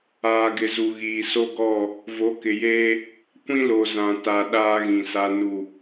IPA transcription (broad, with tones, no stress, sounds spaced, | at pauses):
aː˨ ɡ ɪ˨ z u˨ ɣ iː˨ s o˦ ɡ ɔ˦˨ | v o˨˦ k ɪ˨ j eː˦ | kʷ ĩ˦ l o˨ z ã˨ t a˨ ɗ aː˦ ɣ ĩ˨ s a˦ n u˦˨